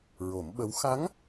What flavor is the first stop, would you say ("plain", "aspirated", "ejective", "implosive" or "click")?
implosive